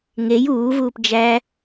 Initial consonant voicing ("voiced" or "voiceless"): voiced